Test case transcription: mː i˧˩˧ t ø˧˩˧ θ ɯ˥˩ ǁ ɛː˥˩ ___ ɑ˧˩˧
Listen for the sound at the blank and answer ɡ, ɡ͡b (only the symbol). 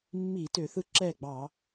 ɡ͡b